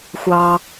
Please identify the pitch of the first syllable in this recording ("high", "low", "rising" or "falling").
low